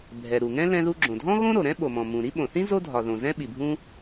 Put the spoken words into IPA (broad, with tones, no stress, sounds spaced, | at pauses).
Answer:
bʱ ɛ˩ ɾ u˩ ŋ ɛ̃˥ l ɛ̃˥ ð u˥ ɡ͡ǁ õ˩ dʱ ɔ̃˥ ɣ õ˥ ɾ o˩ ɾ ɛ̃˥ ɓ o˩ m ɔ̃˩ m ũ˩ ɾ i˥ ɓ õ˩ θ ĩ˥ z o˥ dʱ ɒ˩ ð õ˩ z ɛ̃˥ ɓ i˩ bʱ ũ˥